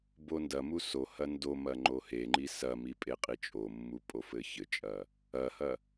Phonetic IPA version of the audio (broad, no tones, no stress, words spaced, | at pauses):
bondɐmu sohɐ ndomɐ ŋ͡ǃoheŋ͡ǃi sɐmi pʼeqʼit͡ʃʼomːu pʼofɘçɘt͡ʃʼɐ | ɐhɐ